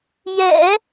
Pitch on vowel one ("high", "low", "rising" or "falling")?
low